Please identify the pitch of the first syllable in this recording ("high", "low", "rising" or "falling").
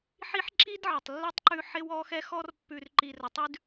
high